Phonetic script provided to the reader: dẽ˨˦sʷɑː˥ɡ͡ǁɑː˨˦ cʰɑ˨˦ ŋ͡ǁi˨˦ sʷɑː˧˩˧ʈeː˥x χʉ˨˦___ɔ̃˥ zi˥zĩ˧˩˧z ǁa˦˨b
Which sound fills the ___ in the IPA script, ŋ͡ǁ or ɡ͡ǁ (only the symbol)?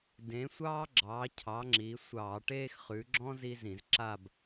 ɡ͡ǁ